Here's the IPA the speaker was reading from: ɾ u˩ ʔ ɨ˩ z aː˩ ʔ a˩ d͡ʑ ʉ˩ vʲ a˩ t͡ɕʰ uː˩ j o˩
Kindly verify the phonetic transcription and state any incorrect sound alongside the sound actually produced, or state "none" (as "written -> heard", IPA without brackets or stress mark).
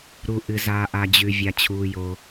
none